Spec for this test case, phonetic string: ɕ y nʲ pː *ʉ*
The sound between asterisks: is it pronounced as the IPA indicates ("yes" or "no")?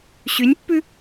yes